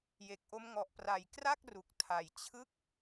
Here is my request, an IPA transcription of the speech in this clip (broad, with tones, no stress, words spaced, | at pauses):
je˨˩k̚ʔo˦˥m ŋɔ˨˩ʔpra˨˩j kra˥˩k̚ ru˨˩k̚ tʰa˨˩jt͡ɕʰɯ˥˩k̚